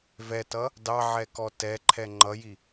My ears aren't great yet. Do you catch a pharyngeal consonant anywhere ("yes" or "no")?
yes